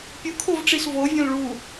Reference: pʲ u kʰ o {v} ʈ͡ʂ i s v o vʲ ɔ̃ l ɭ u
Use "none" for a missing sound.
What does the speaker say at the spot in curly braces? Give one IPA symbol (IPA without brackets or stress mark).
v